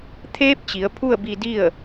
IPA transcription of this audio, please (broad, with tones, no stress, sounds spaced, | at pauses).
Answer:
t̪ʰ eː˧˥ p̚ t͡ɕ i˩˧ ə̯ pʰ u˥˨ ə̯ b i˧ d i˥˨ ə̯